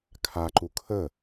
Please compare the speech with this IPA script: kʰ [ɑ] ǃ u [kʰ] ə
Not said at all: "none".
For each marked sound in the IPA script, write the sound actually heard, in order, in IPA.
a, kʰ

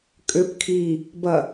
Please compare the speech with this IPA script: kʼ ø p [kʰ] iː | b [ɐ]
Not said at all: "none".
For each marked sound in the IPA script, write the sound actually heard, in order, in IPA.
kʰ, ɐ

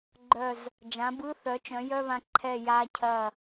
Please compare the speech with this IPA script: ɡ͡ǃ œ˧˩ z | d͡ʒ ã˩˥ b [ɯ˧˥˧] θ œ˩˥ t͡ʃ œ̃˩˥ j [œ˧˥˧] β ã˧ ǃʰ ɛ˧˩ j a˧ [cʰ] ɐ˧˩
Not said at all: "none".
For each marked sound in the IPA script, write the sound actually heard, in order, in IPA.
ɯ˧˥˧, œ˧˥˧, cʰ

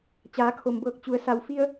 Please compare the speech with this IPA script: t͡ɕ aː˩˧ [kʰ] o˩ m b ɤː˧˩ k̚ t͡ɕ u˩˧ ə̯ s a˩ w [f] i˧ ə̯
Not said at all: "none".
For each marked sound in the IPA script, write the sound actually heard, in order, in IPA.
kʰ, f

